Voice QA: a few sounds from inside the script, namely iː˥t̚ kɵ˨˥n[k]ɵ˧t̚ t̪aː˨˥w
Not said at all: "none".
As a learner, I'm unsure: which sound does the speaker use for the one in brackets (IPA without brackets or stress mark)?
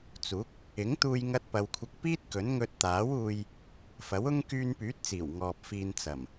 ŋ